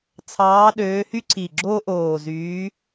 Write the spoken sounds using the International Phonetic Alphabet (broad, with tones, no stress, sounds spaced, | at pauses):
t͡sʰ ɑː˨˦ ɗ øː˨˦ h y˦ ǀʰ i˨˩ ɡ͡ǁ oː˦ ʔ oː˨˩ z yː˨˦